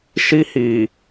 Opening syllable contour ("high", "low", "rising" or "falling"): high